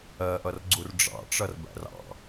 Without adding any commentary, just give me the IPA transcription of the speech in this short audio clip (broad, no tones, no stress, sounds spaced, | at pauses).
ɜ ʔ ʌ r ɡ͡ǀ u r ɖ͡ʐ ɑ̰ ʈ͡ʂ ʌ r b æ̰ r ɑ̰